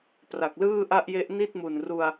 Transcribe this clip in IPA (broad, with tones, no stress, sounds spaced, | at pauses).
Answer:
p r a˨˩ k̚ l ɯː˥˩ ʔ a˥˩ ʔ j e˦˥ ʔ n i˥˩ t̚ m u˨˩ n r u˧ a̯